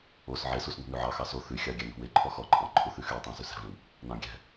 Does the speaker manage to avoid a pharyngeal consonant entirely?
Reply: no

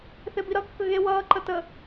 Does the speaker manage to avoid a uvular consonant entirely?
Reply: yes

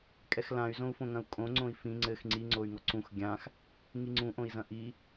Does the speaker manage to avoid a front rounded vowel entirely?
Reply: no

